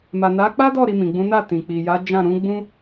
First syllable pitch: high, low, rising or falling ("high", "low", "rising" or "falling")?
low